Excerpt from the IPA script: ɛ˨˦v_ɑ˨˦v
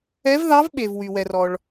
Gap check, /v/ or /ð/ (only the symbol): ð